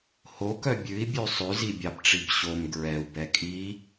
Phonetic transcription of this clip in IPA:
hokœ bʲʉi̯bʲʉ sˤʉzibʲɑbʈ͡ʂib ɕom ɡɹɛu̯bɛ kʼi

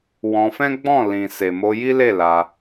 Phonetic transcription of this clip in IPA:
wɔ̃˧fɛ̃˦ ɡ͡bɔ̃˦˨ lĩ˨ se˨mo˧ji˦le˦˨ la˧

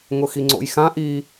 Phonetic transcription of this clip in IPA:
ŋʊxiŋ͡ǀo̰jxã ʔi

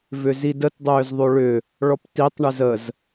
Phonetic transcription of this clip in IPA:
vʏzidət dˤʏːzðˤoɭʏ | ɭɔptitˤ ɳʏzəz

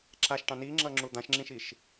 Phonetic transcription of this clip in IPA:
ǁaʃʈɑ̃ niŋ͡ǁʌŋ͡ǁu d̪ãʃŋ͡ǁĩʃiʃ

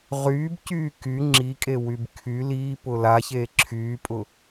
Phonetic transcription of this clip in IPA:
ʁyːbcyː ky ŋ͡ǁikʼewyb kʰy liːpʊ laçeː ǁʰyːpʼʊ

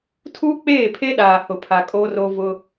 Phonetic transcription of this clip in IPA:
tʰuː˦k͡peː˦˨pʰe˦ ɗaː˨hʊ˨pʰa˨ kʼo˦ro˦ vʊ˦

